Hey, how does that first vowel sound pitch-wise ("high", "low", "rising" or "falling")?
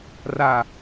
low